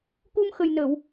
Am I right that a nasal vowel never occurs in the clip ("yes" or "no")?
yes